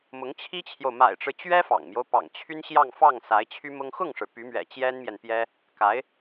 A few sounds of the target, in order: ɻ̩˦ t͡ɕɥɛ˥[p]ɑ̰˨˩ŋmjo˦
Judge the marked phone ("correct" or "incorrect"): incorrect